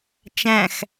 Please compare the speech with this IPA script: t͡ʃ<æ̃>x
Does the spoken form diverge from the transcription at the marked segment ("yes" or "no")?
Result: no